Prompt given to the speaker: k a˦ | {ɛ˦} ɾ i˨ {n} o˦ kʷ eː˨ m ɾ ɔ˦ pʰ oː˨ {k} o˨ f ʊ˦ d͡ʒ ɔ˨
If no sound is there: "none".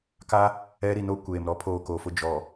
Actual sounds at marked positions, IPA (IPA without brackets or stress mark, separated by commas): ɛ˦, n, k